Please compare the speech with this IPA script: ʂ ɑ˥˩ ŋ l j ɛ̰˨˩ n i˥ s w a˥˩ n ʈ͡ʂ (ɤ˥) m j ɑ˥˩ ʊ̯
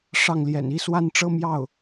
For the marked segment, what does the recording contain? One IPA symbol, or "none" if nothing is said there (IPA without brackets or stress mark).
ɤ˥